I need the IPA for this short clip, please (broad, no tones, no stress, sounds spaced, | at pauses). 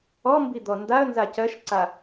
ɔ m b i d̪ ɔ n d a ə̯ n z a c ɜ ʃ ǀ a